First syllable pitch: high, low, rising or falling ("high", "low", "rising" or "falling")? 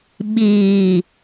low